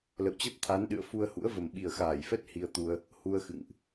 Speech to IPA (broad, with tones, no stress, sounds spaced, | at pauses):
l ə̰˧˨ w t͡ɕ ə˦˥ p̚ t̪ʰ a˨˦ n ɗ ɨ̰˧˨ ə̯ f u˧ ə̯ h ṵ˧˥ ə̯ v ə˨˩ m ɓ i˨˩ ə̯ x aː˧˩ j f ɛ˦˥ t̚ h i˧ ə̯ t̪ u˧ ə̯ | h u˧ ə̯ x ɨ̰˧˨ ŋ ʔ